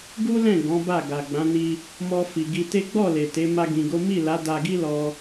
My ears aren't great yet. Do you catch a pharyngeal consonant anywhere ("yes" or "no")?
no